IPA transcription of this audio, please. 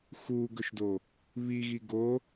x u ɡ ɵ ʃ d o | β i ɣ i ɡ o

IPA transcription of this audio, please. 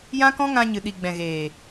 j ã˦ k ɔ̃˦ ŋ ã˧ ɲ ɨ˨ ɗ i˨ ɡ͡b ɛ̃˨ ɣ eː˨

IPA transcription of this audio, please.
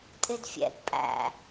tʼ ɪ d fʲ ɛ̰ ɡ pʼ æ̰

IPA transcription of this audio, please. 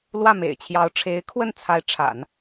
l w ä˥˩ m ḛ˨˩ ɪ̯ t͡ɕʰ j ɑ˧˥ ʊ̯ ʈ͡ʂʰ e˧˥ ɪ̯ kʰ w ə˥˩ n t͡sʰ a˧˥ ɪ̯ ʈ͡ʂʰ a̰˨˩˦ n

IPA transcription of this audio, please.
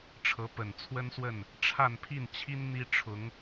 ʈ͡ʂʰ ɤ˧˥ p ə˨˩ n t͡sʰ w ə˥ n s w ə˥˩ n | ʈ͡ʂʰ a˥˧ n pʰ i˥˩ n t͡ɕʰ i˥ n n̪ i˥ ʈ͡ʂʰ ʊ˧˥ ŋ

